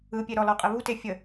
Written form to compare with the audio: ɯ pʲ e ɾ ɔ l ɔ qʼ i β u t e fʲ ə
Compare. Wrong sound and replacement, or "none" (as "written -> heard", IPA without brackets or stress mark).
none